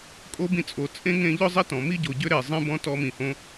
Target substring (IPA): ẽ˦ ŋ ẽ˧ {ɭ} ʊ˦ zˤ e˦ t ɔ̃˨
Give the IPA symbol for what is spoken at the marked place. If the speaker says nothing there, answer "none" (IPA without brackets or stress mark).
ʎ